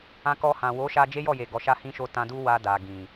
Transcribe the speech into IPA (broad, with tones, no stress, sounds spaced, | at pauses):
ã˧ k ɔ˧ h ã˨ w o˨˦ ʃ a˧ d͡ʒ e˦ j ɔ˦˨ j e˨ ɡ ɔ˨ ʃ a˧ h ĩ˧ ʃ o˧ t ã˧ d u˦ w a˧ d a˨ ɡ ĩ˨